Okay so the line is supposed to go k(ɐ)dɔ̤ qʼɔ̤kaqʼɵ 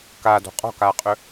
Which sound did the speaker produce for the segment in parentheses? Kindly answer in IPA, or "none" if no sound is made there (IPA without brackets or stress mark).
a